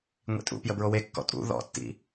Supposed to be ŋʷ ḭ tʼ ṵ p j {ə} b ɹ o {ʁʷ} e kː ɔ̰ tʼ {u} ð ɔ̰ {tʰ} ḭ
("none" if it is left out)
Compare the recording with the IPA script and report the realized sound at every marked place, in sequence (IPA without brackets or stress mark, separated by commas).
ə, w, ṵ, tː